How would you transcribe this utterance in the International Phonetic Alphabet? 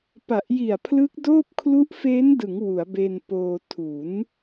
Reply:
p a˨˩ ʔ j i˨˩ a̯ pʰ l ɯ˦˥ k̚ d oː˥˩ p̚ kʰ l u˦˥ ʔ f e˦˥ n d ɯ˩˦ ŋ w u˩˦ a̯ b e˧ n p oː˧ tʰ u˩˦ n

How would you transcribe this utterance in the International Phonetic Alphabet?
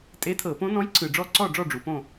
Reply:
tʼ e˧˥ tʰ ɤ˨˩˦ p õ˧˥ n ɔ̃˧˥ j ǀ ɯ˨ ɖ͡ʐ ɔ˥˨ ǀ ɔ˥˨ ɖ͡ʐ ɔ˥˨ ɖ͡ʐ u˨ p õ˥˨

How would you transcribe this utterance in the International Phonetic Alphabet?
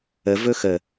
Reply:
ə v ɵ x ə

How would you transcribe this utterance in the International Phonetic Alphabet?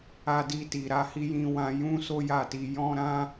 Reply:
a˧ d i˧ t i˨ ɾ a˧ h i˧ j ĩ˦ w ã˦ j ũ˦ s o˦ j a˦˨ t i˧ j ɔ̃˦ ɾ ã˦

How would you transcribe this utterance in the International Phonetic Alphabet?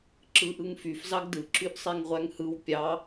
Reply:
ǁ ɯ ʔ ɯ ŋ f y f z ɑ ɡ d ɯ ǁ y ʔ sˤ e ŋ ʁʷ æ ŋ h ɯ w pʲ ɑ

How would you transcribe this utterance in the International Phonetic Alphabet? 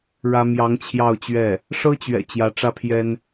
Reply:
ɻ ä˥ m j ɑ˧˥ ŋ t͡ɕʰ j ɑ˥˧ ʊ̯ t͡ɕ ɥ ɛ˥˩ | ʂ ɤ˥ t͡ɕ ɥ ɛ̰˨˩ t͡ɕ j ä˧˥ ʈ͡ʂ ä˥ pʰ j ɛ˥ n

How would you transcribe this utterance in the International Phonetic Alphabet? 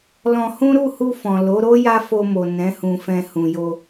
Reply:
l ɔ̃˧ h ũ˦ ɾ u˦˨ h u˧ f ɔ̃˨ l o˨˦ ɾ o˦ j a˦ f o˧ m o˨ n ɛ̃˨˦ h ũ˧ f ɛ̃˧ h ũ˨ j o˧

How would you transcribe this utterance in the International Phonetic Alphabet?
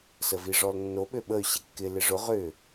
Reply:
s ə v i ʐ ɔ l nː o ɓ ø ɓ ə y̯ ɕ ɪ kː ɪ l ɪ ʐ ʊ ʁ ʏ

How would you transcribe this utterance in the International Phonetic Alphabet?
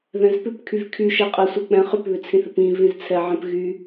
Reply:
ð ɛ̃ z p ʏ p kʰ y v kʰ y ʃ ɛ qʼ ɛ sʷ ɛ k͡p ɛ̃ χ ʏ p β ʏ t͡sʰ ĩ θ ɪ p ĩ v ĩ z t͡sʰ ɛ ʕ ɛ̃ p ɣ y

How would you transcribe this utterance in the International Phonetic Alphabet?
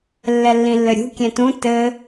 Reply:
lː ɛ lː ĩ lː ɘ ɾʲ ṳ kʲ ɛ̃ t ũ t ɘ

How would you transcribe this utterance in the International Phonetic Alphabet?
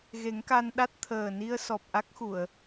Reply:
ɣ e˨˩˦ ŋ k a˧ n ɗ a˦˥ t̚ t̪ʰ əː˨˩ n i˧ ə̯ s ɔ˨˩ p̚ ʔ a˦˥ k̚ x u˨˩˨ ə̯

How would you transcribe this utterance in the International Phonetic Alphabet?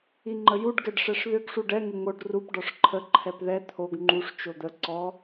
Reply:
i ŋ͡ǃ ə j u ɖ ɡ ɛ ɖ ʂ ɛ ʂ ð ʏ ɡ ʂ u ɖ ɛ ŋ ə ŋ o ɖ r u p ɖ ɔ ʂ ǃʰ ə ǃʰ ɛ p ð ɛ t̪ʰ o ɡ ŋ͡ǃ u ʂ t͡ʃ o d̪ ə ǀ ɔ

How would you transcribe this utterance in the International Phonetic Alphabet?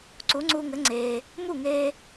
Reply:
ǀ u˩˥ ŋ͡ǀ uː˧ ŋ ɘ˩˥ ŋ͡ǀ eː˩ | m u˥˩ ŋ eː˧

